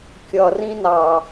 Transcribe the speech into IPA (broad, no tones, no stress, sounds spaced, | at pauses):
kʲ ʌ r ĩ n ɑ